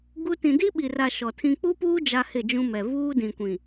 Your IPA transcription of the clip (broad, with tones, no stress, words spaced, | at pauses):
ɡu˦ tĩ˨di˦ɓi˨ra˨ ʃɔ˨tʰĩ˦ k͡pu˦puː˦ d͡ʒa˦hɪ˦˨d͡ʒũ˦mɛ˨ vuː˦dĩ˨kʷĩ˨